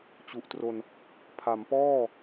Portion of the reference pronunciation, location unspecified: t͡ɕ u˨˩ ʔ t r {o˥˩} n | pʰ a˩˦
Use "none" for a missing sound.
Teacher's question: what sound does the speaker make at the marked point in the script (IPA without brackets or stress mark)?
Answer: o˧